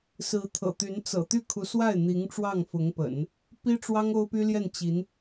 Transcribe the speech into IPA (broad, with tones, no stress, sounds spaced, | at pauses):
s ɹ̩˧˥ t̪ʰ ɤ̰˨˩ t̪ y˧˥ n t͡s ɤ̰˨˩ t̪ y˥˩ kʰ u˧˥ s w a˥˩ ɪ̯ n̪ i˧˥ ŋ ʈ͡ʂ w ɑ˥˩ ŋ f ʊ˧˥ ŋ p ə̰˨˩˦ n | p i˥ ʈ͡ʂ w ɑ˥ ŋ o˥ ʊ̯ p y˥ l j ɛ˥˩ n t͡ɕ i˧˥ n